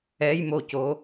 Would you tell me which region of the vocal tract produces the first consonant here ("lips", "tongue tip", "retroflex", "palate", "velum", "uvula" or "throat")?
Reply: palate